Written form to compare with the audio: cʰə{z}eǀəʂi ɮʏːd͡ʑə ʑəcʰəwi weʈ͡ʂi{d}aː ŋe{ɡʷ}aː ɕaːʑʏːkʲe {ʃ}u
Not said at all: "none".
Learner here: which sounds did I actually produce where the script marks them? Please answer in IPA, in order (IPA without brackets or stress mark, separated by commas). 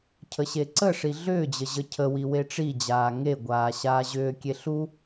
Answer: ɕ, d͡ʑ, ɡʷ, ɬ